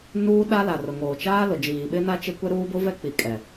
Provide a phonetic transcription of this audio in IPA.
nuː˦ɗa˦ la˨rʊ˨ŋoː˨t͡ʃaː˦ lʊ˨d͡ʒiː˨ɓɪ˦na˦ t͡ʃe˦kʷɛ˦ ɾuː˦bʊ˦vɛ˦k͡pi˨ kʼɛ˨

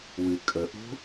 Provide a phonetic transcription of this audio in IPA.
wɨ kʼəʔṳ

